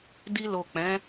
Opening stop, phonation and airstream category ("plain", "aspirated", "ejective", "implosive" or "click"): plain